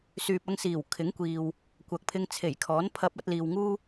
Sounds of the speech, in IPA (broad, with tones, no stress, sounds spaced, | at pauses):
s yː˨ p̚ ɐ˧ ŋ s iː˨˩ w kʰ ɪ˨˥ ŋ kʷ iː˨ w | kʷ ɐ˨ k̚ pʰ ɪ˧ ŋ t͡sʰ e˨˩ j kʰ ɔː˨˥ n pʰ ɐ˧ p̚ ɐ˧ t̚ l iː˨ w ŋ uː˥